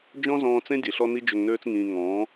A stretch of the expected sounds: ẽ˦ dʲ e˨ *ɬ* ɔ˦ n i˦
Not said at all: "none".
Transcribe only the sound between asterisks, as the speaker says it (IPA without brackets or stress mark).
ɬ